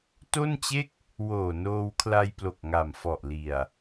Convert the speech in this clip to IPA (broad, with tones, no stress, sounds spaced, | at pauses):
t o˥˩ n t͡ɕ e˥˩ k̚ | w oː˨˩ n oː˧ w kʰ l a˧ j p l o˨˩ k̚ ŋ a˨˩ m f ɔ˨˩ ʔ l i˨˩ a̯